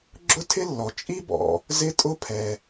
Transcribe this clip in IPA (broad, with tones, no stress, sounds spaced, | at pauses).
ɡ͡ǁ ʊ˥ tʰ ɪ˥ lː ɔ˩ t͡ʃʼ i˥ b ɔ̰˩ | z ɪ˥ tʼ ʊ˥ pʰ ɛ˩